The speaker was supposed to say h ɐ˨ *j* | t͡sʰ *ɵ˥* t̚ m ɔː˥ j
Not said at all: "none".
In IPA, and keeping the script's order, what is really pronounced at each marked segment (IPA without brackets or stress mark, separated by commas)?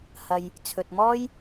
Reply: j, ɵ˨